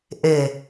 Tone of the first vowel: low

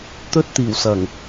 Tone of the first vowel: high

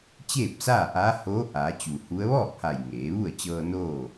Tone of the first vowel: falling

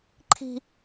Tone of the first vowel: high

